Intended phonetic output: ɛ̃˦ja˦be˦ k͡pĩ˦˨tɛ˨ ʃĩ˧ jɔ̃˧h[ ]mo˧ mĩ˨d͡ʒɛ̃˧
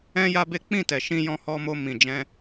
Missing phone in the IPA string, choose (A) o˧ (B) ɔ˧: B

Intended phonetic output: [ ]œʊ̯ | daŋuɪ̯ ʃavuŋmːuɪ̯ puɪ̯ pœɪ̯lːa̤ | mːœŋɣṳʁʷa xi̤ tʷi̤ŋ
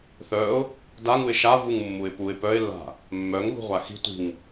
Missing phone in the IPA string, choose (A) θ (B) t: A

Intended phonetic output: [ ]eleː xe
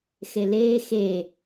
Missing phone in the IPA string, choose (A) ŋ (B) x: B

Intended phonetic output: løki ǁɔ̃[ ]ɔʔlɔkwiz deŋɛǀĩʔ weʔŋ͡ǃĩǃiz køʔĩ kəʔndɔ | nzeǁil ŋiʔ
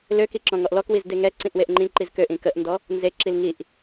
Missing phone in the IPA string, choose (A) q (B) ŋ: B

